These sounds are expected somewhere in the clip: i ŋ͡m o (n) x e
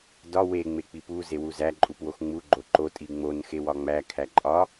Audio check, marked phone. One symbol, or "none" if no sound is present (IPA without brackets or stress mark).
n